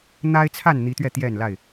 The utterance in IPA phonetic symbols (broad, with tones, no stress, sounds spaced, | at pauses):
n̪ a˦ ɪ̯ t͡sʰ a˥˨ n n̪ i˨˦ t̪ ɥ ɛ˥˨ t̪ j ɛ˥˨ n l a˥˨ ɪ̯